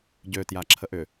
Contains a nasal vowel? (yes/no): no